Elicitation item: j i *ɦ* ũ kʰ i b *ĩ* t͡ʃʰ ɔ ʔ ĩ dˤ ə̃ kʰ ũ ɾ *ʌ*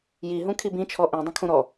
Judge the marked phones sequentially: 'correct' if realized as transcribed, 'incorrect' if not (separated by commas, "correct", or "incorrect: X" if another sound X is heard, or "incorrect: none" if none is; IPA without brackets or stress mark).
correct, correct, incorrect: ɔ